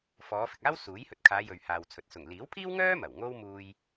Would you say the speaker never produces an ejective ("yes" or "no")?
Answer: yes